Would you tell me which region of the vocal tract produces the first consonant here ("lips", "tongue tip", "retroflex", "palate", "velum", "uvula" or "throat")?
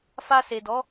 lips